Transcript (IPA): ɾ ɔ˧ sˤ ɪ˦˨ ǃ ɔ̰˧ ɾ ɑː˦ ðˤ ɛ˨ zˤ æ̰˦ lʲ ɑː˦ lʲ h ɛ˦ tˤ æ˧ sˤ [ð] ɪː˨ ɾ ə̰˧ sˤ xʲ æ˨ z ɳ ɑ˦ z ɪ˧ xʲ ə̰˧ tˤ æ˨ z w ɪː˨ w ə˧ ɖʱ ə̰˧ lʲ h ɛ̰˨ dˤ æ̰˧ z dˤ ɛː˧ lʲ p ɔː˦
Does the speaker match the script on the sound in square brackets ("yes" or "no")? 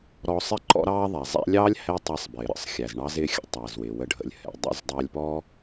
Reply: no